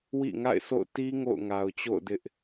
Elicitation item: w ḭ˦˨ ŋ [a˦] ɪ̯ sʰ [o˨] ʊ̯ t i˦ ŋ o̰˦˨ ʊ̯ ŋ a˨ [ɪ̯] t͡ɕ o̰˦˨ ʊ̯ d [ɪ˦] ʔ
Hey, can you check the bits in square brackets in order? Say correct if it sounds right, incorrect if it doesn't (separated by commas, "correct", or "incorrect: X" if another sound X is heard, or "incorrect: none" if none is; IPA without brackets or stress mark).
incorrect: a̰˦˨, incorrect: o̰˦˨, incorrect: ʊ̯, correct